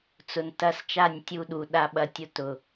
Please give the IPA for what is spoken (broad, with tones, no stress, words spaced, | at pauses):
t͡sʊ˨ntɐ˦s t͡ʃa˦˨nʲtʲu˧ɗu˨ ɗa˧ ɓɐ˧tʲʊ˧ tʊ˨